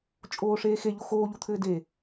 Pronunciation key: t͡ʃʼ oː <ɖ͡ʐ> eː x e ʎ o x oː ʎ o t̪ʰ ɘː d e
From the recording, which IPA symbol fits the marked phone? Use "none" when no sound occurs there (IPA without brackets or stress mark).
ʂ